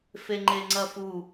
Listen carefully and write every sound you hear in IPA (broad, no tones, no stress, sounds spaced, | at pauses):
f e ŋ͡ǃ e ŋ͡ǀ ɐ f u